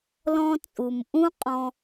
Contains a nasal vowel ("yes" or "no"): yes